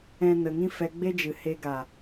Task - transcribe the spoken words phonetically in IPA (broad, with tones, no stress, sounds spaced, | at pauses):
ɛ̃˦ n ə˧ ŋ ĩ˦ f ɛ˧ ɡ͡b e˦ d͡ʒ ɨ˨ h e˧ ɡ a˨